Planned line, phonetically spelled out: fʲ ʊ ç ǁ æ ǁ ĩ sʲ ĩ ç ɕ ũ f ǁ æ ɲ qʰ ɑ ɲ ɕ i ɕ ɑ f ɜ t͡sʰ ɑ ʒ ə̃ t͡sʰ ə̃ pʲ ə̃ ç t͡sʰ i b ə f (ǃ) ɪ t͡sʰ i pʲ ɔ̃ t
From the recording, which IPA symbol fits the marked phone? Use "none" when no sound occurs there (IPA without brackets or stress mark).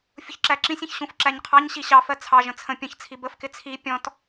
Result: k